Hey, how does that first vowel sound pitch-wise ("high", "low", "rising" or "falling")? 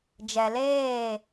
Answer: low